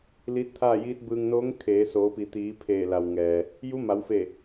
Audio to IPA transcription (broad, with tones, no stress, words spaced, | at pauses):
liː˧˥t̚t̪ʰaː˥˨jiː˧˥t̚ bɯː˧ŋnoː˧˥ŋ kʰeː˩˧ soː˩˧pi˩t̪iː˩˧ pʰeː˧˩la˩wŋɛː˩ | ju˧˥ma˩˧wfe˧˩